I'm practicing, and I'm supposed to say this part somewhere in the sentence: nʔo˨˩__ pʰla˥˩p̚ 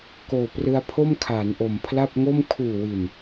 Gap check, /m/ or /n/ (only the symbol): m